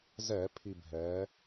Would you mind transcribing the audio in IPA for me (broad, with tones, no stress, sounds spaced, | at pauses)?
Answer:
z ɛ˧˩˧ pʰ i˦˨ bʱ ɛː˩˥